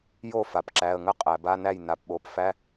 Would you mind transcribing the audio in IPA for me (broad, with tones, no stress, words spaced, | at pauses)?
jo˥˩ fa˩pǁæ˩˧˩ə̯ŋə˥˩ qʼæ˩ba˧˥˧næ˥˩j na˩˧˩pɓo˩˧˩pfæ˧˥˧